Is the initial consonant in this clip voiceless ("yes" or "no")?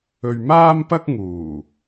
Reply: no